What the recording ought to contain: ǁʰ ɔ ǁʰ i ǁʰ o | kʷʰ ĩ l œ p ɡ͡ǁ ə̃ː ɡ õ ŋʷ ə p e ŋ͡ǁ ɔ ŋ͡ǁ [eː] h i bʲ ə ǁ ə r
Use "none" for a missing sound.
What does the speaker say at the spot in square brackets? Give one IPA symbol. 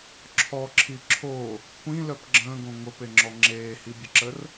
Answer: eː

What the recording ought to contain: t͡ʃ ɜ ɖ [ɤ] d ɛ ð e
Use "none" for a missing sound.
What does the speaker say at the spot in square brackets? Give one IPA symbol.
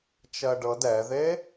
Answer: ɤ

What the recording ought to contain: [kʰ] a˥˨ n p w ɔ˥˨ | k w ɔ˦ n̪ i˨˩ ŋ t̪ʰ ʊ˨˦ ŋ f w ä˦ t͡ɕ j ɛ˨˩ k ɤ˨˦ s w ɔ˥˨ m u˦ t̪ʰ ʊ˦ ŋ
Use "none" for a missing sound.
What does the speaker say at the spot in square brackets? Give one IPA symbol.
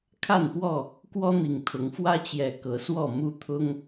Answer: kʰ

